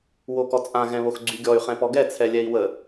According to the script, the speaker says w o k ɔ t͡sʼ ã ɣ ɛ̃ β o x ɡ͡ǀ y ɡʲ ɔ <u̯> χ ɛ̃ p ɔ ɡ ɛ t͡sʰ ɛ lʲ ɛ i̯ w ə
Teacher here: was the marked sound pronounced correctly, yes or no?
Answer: no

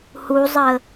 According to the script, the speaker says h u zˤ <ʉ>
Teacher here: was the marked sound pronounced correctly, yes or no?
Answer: no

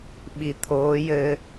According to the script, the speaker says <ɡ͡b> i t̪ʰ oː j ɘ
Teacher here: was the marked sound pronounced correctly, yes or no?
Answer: no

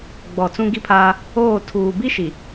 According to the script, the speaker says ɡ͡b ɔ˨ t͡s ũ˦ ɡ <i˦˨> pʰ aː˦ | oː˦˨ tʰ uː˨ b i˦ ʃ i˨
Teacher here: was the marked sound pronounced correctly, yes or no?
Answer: no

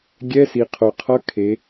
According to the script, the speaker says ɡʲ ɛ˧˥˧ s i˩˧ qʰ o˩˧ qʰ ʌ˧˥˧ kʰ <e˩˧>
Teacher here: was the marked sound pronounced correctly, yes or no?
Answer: yes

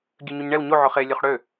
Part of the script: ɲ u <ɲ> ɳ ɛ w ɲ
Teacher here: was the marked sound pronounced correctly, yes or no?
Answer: yes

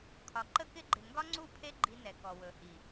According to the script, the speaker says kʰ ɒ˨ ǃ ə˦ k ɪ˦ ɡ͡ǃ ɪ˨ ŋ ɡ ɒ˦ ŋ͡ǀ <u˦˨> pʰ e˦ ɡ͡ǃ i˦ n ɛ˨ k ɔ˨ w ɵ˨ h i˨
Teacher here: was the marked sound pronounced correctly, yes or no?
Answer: yes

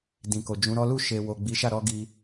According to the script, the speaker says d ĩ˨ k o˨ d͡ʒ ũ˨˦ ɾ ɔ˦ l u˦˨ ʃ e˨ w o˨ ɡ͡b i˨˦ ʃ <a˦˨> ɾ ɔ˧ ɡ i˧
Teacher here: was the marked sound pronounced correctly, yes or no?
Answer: yes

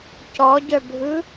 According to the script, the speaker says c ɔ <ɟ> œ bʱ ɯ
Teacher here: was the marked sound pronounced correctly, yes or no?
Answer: yes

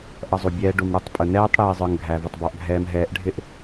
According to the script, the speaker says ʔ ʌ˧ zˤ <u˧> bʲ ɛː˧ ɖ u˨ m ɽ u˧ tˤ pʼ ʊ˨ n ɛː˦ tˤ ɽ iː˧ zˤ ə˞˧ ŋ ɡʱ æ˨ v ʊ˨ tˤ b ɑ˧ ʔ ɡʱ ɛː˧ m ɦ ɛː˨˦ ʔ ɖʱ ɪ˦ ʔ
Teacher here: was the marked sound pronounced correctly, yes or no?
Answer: no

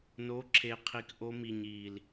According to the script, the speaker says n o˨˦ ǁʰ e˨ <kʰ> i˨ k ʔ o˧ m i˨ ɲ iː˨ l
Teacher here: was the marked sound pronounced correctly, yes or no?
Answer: no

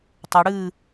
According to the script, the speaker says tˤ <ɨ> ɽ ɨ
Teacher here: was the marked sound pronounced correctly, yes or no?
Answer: no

